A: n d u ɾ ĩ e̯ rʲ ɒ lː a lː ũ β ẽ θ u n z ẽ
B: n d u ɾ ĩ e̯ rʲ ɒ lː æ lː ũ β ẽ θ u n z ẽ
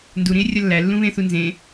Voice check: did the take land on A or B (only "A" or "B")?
B